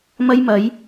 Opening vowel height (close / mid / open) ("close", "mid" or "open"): open